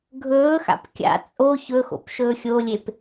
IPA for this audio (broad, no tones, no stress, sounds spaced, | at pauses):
ɡʱ ɵː x a̰ p kʲ a̰ t͡sʼ o ç ɵ x o̰ p ʃ ɵː xʲ o lʲ e p